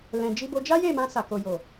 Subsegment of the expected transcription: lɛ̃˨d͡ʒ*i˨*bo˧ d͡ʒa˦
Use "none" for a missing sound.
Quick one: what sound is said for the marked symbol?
i˧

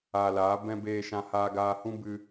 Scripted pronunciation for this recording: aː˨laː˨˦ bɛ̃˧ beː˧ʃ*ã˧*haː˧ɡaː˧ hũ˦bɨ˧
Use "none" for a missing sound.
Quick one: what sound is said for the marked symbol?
ã˧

